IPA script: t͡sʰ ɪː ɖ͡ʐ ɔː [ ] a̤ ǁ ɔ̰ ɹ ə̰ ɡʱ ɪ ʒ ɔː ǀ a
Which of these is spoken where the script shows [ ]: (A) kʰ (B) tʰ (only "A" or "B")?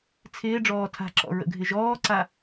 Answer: B